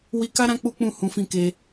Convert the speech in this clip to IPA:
w i˧ k a˦ ɾ ã˦ k͡p u˦ k͡p ũ˦˨ h ũ˨˦ f ĩ˧ k e˧

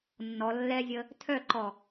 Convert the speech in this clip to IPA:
nː ɔ lː ɛ zʲ ə | tʰ œ ǃ ɔ

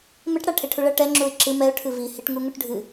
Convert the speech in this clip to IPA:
m ɘ ʈ ɽ a ʈʰ e ʈʰ u ɭ ɐ ʈ ɛ ŋ͡ǁ u ɪ̯ ǁ ɨ m ɛ ʊ̯ ʈʰ ɨ v i h i ʈ ŋ u ŋ u ʈ ɖʱ ɨ

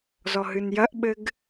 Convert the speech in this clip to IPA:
z ɔ ɦ ɨ n j ɐ ʔ ɓ ɘ ɡ

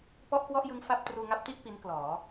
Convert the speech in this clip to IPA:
p ɔ˥˩ ʔ k w ɔ˥˩ ʔ j ɯ˦˥ ŋ f a˥˩ p̚ t r uː˧ ŋ a˥˩ p̚ t i˥˩ ʔ p i˦˥ n k l ɔː˩˦

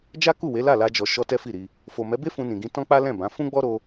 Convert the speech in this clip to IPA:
d͡ʒ a˦ k u˦˨ w e˨˦ l a˦˨ l a˧ d͡ʒ ɔ˨ ʃ ɔ˧ t ɛ˦ f i˦˨ ɾ i˧ | f o˨ m ɛ˨˦ b e˦ f ũ˧ n ĩ˨ ɡ ĩ˧ t ɔ̃˦ k͡p a˦ l ɛ̃˦˨ b ã˨˦ f ũ˦ ɡ͡b ɔ˦ ɾ o˦

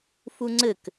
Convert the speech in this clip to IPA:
f u ŋ͡ǀ ɘ k

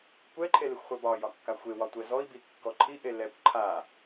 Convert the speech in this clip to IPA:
kʷ ɛ ǃʰ e l e xʷ χʷ ɛ b ɒ j ɒ kː a xʷ e w ɒ tʷ ɛ z ɔ i̯ b i kː ɔ ǃʰ i ʔ e l ɛ kʷ ǃʰ a

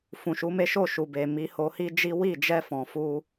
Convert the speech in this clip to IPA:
f ũ˨ ʃ u˨˦ m e˦ ʃ o˦˨ ʃ u˨ b e˨ m i˨˦ h o˧ h i˦ d͡ʒ i˦ w i˦˨ d͡ʒ ɛ˧ f ɔ̃˨ f u˧

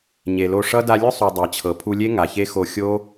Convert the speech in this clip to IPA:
ɲ e˨ l o˧ ʂ ʌ˦ d a˧ lʲ ʊ˦ sˤ u˨ dˤ æ˨ t͡ɕʰ ɤ˨ pʰ u˧ lʲ e˦ ŋ a˨ ç e˦ x o˧ xʲ o˦

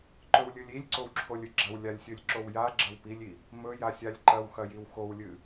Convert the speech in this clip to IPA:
ǃ ɵ w lʲ ɨ lʲ i lʲ ǀ o w ǁʰ o lʲ ɨ ɡ͡ǁ ɐ w lʲ a lʲ sʲ ɵ lʲ ǁ o w j a ɡ͡ǁ ɐ w p i lʲ i | m ɵ j a sʲ a lʲ ǃ ɐ w x ɐ j i w x o w lʲ ɨ

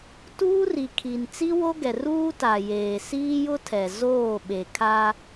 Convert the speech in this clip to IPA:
t uː˦ r i˨ kʰ i˨ n t͡s i˦ w o˦ ɡ ɛ˨ r uː˦ t a˨ j eː˨ s iː˦ j ʊ˦ tʰ ɛ˨ z oː˦˨ ɓ e˨ kʰ a˦

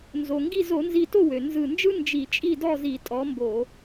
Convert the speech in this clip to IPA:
n z o˩ ŋ ɡ i˥˨ z o˧˩˧ n z i˧˩ t o˥˨ w ø˩ n z ɯ˧˩ n d͡ʒ ɯ˥ n d͡ʒ i˧˩˧ t͡ʃʼ i˥˨ d ɔ˥˨ z i˧˩˧ tʼ ɔ˨˦ m b o˧˩˧

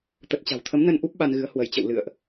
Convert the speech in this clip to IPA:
t̪ ə˨˩ t̚ t͡ɕ a̤˨˩ w t̪ʰ ə˨˦ m n ə˧ n ʔ u˦˥ p̚ ɓ a˧ n ɣ ɨ˨˦ ə̯ h w ə˧˩ j t͡ɕ ə̰˧˨ w l ɨ̰˧˨ ə̯ ʔ

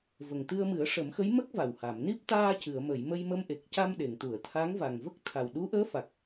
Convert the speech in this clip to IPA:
v ə˨˩ ŋ t̪ ɨ˧ ə̯ m ɨ˨˩˦ ə̯ ʂ ə˨˩˦ m x ə˧˥ j m ə˦˥ k̚ v a˨˩ w h a˨˩˨ m n i˦˥ p̚ t̪ aː˧ c ɨ˨˩˨ ə̯ m ə˨˩˨ j m ə˧ j m ə˧ m ʔ e˨˩ k̚ c a˧ m ɗ e˨˩˨ ŋ t̪ u˨˩˨ ə̯ t̪ʰ a˧˥ ŋ v a˨˩ ŋ v ə˦˥ k̚ t̪ʰ a˨˩ w ɗ u˧˥ ʔ əː˧˥ f a˨˩ k̚

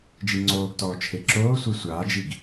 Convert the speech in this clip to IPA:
d͡ʒ i ŋ͡ǀ oː ɡ t ɔː t͡ʃʰ e ǁ oː sʷ e sʷ aː d͡ʒ i ɡ

